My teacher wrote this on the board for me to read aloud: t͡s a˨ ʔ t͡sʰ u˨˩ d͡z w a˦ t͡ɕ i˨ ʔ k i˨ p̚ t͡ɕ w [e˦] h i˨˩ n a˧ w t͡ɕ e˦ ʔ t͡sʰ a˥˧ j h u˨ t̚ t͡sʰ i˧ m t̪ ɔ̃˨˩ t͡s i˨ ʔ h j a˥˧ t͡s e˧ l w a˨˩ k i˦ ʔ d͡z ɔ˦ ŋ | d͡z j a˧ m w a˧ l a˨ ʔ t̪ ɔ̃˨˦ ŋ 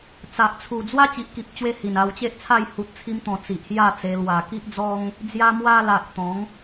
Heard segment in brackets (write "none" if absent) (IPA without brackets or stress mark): e˧